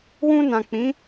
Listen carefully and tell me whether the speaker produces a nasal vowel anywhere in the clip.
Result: yes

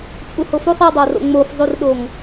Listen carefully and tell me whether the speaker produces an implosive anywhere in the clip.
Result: yes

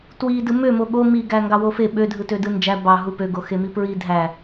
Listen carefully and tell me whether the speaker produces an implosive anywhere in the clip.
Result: yes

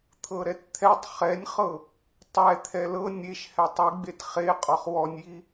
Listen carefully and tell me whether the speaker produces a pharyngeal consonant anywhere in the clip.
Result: no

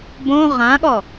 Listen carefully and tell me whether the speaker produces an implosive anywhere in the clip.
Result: yes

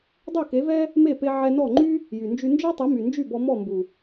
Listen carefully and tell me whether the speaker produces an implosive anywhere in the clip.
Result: no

